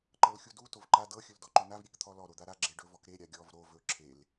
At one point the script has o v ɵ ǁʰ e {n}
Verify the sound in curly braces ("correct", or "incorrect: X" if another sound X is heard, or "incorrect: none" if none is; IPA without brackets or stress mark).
incorrect: l